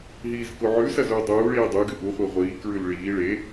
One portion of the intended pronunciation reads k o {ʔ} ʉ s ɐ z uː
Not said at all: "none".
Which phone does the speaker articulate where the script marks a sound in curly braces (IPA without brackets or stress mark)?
ʕ